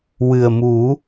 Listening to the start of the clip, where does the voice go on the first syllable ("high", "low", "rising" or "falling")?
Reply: low